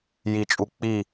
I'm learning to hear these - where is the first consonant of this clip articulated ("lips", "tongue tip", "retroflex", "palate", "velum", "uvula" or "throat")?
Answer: palate